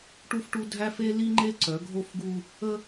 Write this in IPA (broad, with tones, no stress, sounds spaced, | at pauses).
ʈ u˦ f ʈ u˦ dʱ æ˦ f e˦ l i˦ ŋ͡ǃ e˦ ǀ œ˨˦ ɡʱ o˦ f ɡ u˦ | ə˦